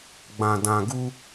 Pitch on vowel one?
low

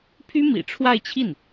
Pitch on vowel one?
high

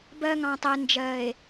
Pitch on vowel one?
high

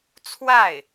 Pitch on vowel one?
falling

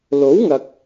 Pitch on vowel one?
rising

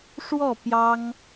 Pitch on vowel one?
falling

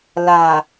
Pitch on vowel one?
low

